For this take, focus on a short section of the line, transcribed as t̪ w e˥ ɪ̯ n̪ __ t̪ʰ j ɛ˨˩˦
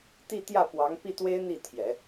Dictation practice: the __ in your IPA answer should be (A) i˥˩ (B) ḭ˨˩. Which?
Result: A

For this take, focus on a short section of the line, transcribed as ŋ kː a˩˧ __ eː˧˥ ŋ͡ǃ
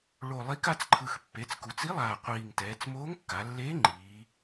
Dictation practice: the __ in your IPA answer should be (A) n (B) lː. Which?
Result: B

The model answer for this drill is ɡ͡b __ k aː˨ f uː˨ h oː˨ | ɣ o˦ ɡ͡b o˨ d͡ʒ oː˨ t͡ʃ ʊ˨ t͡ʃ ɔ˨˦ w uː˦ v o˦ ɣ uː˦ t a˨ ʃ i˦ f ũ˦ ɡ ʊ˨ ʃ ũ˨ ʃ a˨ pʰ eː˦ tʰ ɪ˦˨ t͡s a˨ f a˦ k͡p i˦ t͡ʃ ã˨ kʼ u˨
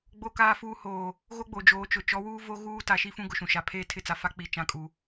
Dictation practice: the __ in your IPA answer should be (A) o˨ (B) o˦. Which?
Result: A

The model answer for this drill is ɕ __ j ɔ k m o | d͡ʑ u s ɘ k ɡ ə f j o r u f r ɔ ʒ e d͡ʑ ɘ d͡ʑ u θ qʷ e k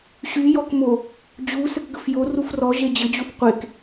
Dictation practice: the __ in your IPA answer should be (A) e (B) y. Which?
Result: B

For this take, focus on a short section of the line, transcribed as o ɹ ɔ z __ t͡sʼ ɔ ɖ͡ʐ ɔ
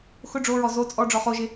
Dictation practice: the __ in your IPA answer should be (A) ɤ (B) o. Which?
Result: B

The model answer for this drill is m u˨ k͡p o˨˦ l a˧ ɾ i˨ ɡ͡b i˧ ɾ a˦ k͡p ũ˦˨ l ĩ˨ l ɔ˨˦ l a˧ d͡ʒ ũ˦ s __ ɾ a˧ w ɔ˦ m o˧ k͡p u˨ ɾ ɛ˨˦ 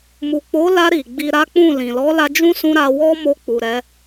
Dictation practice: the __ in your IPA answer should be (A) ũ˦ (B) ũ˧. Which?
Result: B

